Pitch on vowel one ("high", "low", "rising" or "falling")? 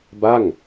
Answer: falling